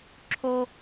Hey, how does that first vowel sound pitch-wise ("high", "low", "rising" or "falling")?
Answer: high